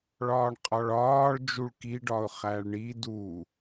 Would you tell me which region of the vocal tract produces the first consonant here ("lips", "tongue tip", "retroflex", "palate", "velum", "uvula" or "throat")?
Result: retroflex